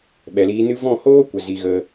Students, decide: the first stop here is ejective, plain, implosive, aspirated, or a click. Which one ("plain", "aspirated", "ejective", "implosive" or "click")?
implosive